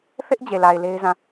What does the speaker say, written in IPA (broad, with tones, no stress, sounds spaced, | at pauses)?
θ ɪ˦ ʔ d͡ʑ e˨ l a˨ ɪ̯ l e˦ ɪ̯ z ã˦˨